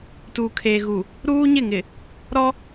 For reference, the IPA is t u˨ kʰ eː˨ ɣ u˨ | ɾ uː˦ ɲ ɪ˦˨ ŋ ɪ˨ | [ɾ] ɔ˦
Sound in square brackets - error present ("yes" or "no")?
no